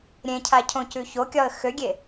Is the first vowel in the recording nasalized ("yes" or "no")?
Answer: yes